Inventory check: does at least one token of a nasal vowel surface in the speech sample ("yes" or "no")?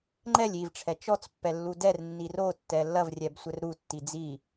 no